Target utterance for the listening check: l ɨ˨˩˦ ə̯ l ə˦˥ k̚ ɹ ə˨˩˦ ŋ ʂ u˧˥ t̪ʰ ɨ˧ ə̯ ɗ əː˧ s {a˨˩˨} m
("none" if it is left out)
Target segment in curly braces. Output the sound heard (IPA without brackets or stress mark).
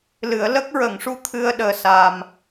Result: a˧